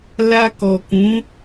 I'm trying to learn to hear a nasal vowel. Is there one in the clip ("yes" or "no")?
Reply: yes